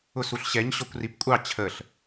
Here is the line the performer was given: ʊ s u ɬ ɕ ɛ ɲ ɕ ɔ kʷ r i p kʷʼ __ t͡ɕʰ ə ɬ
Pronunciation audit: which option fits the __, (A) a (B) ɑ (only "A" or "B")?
B